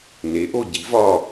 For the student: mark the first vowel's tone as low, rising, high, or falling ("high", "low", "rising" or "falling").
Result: rising